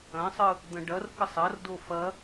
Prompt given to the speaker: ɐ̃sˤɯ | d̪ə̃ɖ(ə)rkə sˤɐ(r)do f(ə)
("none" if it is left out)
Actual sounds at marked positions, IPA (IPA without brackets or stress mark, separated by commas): ɐ, r, ɐ